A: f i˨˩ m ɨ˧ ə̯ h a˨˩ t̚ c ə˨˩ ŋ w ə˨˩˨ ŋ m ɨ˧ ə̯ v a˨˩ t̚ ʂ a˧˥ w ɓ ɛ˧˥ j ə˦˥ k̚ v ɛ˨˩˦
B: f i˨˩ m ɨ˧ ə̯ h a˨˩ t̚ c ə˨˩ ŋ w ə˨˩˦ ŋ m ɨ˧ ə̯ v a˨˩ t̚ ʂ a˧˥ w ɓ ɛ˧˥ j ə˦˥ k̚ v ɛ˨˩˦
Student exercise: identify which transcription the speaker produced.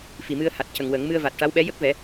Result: B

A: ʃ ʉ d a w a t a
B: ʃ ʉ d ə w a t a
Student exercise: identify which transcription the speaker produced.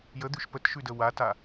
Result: B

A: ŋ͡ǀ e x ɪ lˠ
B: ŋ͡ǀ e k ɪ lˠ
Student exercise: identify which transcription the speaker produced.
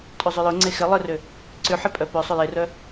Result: A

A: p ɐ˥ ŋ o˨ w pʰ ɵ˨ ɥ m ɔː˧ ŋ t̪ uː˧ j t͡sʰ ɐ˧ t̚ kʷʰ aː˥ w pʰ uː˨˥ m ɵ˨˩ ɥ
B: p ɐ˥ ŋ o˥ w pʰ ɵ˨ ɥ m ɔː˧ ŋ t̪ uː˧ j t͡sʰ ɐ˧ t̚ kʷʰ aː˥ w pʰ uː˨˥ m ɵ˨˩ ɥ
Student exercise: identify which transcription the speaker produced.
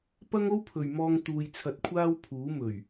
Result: B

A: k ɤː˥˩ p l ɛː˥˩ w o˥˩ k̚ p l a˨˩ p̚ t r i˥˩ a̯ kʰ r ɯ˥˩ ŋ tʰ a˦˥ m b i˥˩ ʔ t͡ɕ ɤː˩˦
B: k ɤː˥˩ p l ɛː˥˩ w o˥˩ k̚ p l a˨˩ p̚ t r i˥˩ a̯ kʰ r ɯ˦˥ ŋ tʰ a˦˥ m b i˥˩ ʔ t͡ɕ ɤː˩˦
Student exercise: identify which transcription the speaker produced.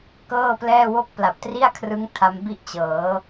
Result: B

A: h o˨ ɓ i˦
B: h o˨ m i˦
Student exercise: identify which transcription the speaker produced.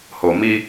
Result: B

